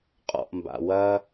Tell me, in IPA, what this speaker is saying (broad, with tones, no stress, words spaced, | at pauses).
qʼɔ̰˨ʔmba̰˨ wɐ˦